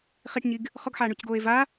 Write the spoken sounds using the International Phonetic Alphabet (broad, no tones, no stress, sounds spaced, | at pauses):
χ i ʈ ɲ i ɡ | χ ɔ ɡ ħ aː ɳ u c ɡ oː e̯ v a